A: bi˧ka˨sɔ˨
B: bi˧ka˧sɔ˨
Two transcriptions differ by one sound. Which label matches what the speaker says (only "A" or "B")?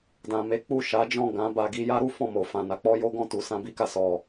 A